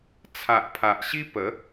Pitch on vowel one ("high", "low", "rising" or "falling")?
low